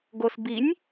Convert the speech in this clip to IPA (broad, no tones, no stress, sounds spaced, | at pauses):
ɡ o s b i nʲ